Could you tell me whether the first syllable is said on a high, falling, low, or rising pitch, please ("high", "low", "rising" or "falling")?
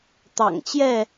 low